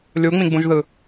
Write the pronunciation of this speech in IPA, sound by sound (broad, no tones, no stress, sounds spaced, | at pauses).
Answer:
lʲ u ŋ͡m ĩ ɡ͡b ũ ʒ ð ɯ